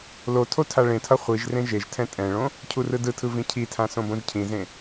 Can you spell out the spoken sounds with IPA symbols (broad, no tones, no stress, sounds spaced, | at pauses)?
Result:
l o tʰ o tʰ a ɭ ẽ tʰ ʌ χʷ i ʒ r ẽ ʒ e ʒ tʰ ɛ̃ tʼ ɛ̃ ɭ õ | cʰ u r ɯ d ɯ tʰ ɯ v ĩ cʰ i tʰ ã s õ b õ ʒ cʰ ĩ z ẽ